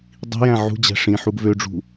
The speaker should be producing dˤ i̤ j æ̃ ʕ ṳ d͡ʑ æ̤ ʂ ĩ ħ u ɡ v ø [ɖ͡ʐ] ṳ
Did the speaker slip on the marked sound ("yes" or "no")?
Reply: no